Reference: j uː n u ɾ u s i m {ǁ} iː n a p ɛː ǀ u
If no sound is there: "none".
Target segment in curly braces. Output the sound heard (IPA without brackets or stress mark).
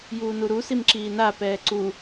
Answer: ǁ